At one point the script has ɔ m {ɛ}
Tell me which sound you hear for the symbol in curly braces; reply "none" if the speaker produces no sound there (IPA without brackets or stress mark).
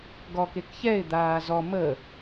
ə